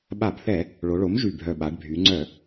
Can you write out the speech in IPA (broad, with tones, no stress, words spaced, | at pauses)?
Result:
ɓa˧˩˧bθɛ˧˩˧ | ɭo˩˧ɭo˩˥m ʒy˨˩bʱœ˨˩ɓa˩˧ɖ bʱy˩˧ŋ͡ǀœ˧˩˧